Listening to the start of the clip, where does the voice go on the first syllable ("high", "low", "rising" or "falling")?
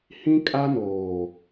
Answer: high